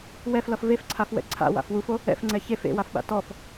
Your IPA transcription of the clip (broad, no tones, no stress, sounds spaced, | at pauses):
w ɛ f l ʌ f v e f ǀʰ a f w ɛ̰ ǀʰ a̰ w a̰ f w u f o | ɛ̰ f ŋ͡ǀ ɛ ç e f ḛ w a f ɓ a̰ t ɔ f